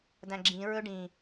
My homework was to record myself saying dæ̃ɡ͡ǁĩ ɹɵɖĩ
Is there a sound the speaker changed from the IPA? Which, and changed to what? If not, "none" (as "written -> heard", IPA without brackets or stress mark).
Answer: none